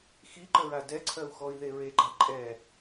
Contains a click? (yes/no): yes